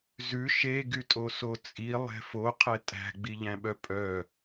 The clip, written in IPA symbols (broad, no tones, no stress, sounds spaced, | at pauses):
z ʉ ʃ e ɡ y tʼ o s o t͡sʼ i lˠ ɛ̤ f o qʰ ɛ tʼ æ̤ ɡ͡b i ʎ æ̃ ɓ œ pʼ œ